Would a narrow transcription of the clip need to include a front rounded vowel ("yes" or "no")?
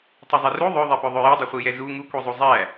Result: yes